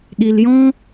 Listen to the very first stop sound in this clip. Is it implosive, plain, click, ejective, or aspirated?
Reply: implosive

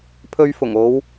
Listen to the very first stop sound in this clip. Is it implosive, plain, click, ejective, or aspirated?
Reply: aspirated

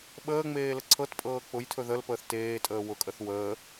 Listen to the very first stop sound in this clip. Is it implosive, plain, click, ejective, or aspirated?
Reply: implosive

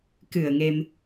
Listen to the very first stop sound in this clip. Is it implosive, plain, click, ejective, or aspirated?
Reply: plain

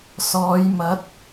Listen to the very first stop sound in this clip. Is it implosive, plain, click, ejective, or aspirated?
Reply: plain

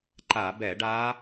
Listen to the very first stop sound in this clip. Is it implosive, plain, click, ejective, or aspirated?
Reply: click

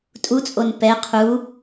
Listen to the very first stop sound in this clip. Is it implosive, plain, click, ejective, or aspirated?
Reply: ejective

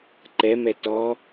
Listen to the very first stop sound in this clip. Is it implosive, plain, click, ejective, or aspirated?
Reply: click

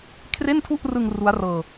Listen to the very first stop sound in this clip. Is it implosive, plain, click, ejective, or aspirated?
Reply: aspirated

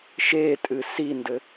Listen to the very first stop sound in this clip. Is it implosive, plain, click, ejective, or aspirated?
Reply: ejective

